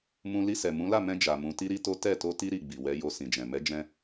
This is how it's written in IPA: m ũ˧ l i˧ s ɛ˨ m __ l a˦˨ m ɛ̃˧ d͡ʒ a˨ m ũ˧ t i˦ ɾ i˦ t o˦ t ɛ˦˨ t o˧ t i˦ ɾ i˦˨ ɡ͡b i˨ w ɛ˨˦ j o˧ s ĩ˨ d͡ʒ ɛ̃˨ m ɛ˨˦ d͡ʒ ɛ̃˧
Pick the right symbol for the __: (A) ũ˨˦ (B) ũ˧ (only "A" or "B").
A